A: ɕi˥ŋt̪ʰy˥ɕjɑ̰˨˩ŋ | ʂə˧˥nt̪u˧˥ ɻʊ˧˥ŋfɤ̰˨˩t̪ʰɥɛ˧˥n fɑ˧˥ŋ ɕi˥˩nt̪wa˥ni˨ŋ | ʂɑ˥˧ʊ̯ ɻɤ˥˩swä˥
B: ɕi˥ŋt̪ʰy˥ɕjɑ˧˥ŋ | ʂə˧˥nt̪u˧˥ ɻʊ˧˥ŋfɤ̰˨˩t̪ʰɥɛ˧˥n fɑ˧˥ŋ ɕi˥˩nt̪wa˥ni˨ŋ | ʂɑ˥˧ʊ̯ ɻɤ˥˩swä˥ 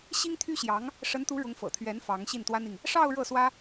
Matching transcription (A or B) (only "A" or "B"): B